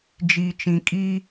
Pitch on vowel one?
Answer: low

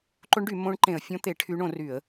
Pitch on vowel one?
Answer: rising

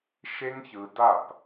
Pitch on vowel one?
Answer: high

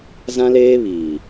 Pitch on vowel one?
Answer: high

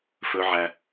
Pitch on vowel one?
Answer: high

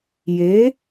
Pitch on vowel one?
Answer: rising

